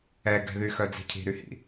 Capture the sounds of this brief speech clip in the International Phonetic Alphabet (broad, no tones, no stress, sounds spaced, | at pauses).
ɛ ɡ ɛ̤ ð y x œ d͡z i̤ cʰ i̤ ɾ y h ḭ